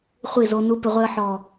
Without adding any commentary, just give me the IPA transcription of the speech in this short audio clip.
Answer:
χʷi˦˨zo˧ nu˦pɪ˧ʁʷe˦ə̯ ħɔ˨

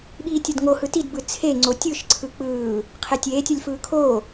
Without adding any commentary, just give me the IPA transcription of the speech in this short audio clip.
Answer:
ɓiːtʲʌdŋohɯ tidbɯ t͡sʰe ŋ͡ǀotʲɯʃ ǀʰɯk͡pɯː | qʰetʲeːtʲʌlʲ fɯːkʰoː

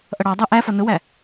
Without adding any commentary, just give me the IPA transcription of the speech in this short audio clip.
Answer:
ʔʌɽɑdˤæ ʔæfʌ nʊwæ

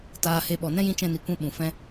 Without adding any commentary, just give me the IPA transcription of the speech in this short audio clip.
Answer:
taː˧he˧ ɓɔ˨nɛ̃˦jĩ˧ t͡ʃɛ̃˦ni˧kʷɛ̃˦ ɓũ˨ fɛ̃˧

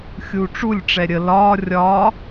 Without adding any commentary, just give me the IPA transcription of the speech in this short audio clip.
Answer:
xʲuʈ͡ʂulʲʈ͡ʂɛ ɾʲə lɒː rʲɒː

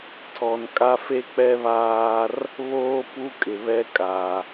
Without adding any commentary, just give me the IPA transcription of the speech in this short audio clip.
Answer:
tʰɔ˨n kʼa˦fe˦k͡pɛ˦βaː˦r | βoː˦pu˦kʼɪ˨βɛ˦ kʼa˨

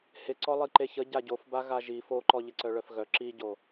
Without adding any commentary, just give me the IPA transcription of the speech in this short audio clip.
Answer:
hɪ ǀɔlˠiǃeçə ɟaɟofba ɣaʒi foǃɔ ʎɪǀœɭœfɣœ ǁiɟo

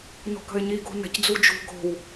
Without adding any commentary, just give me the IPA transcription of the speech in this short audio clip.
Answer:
no̤kə̤ɪ̯ɲi ɡo̤nə̤c d͡zud͡ʒṳ ɡo̤w

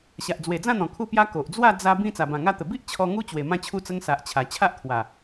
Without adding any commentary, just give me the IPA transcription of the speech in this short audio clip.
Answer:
ɕa˨ʔd͡zwe˨˩d͡zã˥˧n̪ɔ̃˨˩ kʰu˥˧pja˦ ko˨ʔd͡zwa˥˧ d͡za˧bĩ˧ t͡sa˨˩bã˨˩ŋa˧t̪ə˨˩ bi˦ʔ t͡ɕʰɔ˧ŋu˦ t͡ɕwe˨˩mã˧t͡ɕʰu˧t͡sə˧ŋ sa˨ʔt͡ɕʰa˨˩ t͡ɕʰa˦ʔt̪ʰwa˨˩

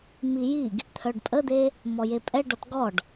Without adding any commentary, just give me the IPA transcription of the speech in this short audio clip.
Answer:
mijiɡ | t̪ʰœɖpʼəd̪e | mɔjepʼɛ ɖɔtɡɔɖ

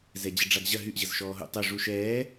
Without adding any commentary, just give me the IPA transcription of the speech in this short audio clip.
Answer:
zɛd͡ʑəɖ͡ʐaɡʑɐ ɦyʔ ʑəzʃɔːɦṵ tˤø ʐu ʃɛː

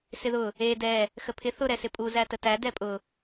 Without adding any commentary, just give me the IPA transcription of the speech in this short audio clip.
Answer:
sɪðʊ | e dɛ | xəpʰɪ θʊ ɾɛsɪpʼu zætətæ dɛpʼʊ

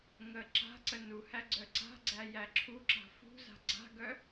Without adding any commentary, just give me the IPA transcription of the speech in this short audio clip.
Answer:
ŋə ǁa̤ǀə nuhæ ɡ͡ǀœǀa̤ɡ͡ǀæ jæǁʰuǁa̤ fṳza̤ ɡ͡ǀa̤ɡœ

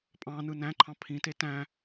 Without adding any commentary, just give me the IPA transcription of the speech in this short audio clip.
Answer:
pʼɑ̃nɯ næ̃ǃʰɑ̃ pʰĩte tæ̃

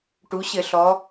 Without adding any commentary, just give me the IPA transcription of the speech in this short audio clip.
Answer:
ʈu˩˧ɕɘ˧˩˧ ɬɔ˩˧

